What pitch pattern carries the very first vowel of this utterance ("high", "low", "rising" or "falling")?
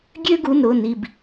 high